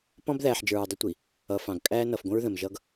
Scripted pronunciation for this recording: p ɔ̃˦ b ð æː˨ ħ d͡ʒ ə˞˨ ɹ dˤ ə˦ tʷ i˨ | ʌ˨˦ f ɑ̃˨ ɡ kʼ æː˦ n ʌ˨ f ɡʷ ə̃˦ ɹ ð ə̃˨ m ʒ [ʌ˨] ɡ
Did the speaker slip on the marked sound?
yes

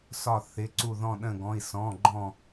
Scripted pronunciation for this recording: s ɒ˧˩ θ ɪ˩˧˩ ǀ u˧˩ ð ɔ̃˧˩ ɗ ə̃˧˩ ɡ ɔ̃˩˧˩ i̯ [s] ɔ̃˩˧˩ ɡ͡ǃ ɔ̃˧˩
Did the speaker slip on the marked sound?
no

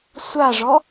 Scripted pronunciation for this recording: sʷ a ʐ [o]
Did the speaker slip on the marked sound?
yes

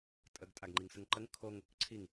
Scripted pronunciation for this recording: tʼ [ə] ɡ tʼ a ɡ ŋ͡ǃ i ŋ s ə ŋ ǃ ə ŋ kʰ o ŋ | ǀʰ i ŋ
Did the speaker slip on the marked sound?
no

